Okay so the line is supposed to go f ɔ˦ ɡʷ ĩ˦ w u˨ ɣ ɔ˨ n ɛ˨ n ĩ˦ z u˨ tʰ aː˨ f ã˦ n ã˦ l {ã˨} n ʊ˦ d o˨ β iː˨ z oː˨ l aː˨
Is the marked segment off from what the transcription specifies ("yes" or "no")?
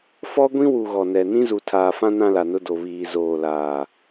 yes